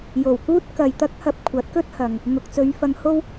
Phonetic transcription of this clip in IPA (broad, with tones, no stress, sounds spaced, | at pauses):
j o˨˩ w k uː˥ t̚ k ɐ˨ j t̪ ɐ˥ k̚ h ɐ˧ p̚ kʷʰ ɐ˨˥ t̚ k ɵ˥ t̚ h ɐ˨ ŋ | ŋ ʊ˨ k̚ t͡s ɵ˨˧ ɥ f ɐ˨ ŋ h o˥ w